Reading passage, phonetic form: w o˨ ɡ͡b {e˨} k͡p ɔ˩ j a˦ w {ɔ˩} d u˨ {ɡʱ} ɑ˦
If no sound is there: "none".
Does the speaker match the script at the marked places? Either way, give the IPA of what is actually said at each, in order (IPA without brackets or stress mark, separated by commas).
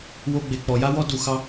e˩, ɔ˦, x